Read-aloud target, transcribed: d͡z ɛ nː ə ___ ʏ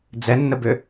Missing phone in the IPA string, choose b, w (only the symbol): b